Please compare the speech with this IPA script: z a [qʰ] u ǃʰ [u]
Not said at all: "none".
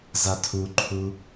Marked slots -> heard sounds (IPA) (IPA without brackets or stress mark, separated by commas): tʰ, u